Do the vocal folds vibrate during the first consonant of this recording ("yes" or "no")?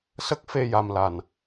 no